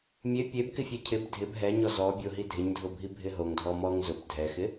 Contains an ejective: no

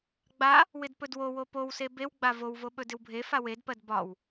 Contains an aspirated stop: no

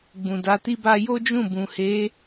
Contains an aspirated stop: no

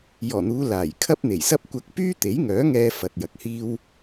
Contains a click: no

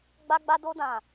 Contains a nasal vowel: yes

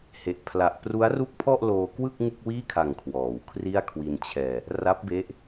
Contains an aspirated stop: yes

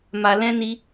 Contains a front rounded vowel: no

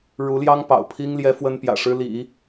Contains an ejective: no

